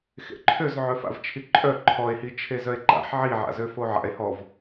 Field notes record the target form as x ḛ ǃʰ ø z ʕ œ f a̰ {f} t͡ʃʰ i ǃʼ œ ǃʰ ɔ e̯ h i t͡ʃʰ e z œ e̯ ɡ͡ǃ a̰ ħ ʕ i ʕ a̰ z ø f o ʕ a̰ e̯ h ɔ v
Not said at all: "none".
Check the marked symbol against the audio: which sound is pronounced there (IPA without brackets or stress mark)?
v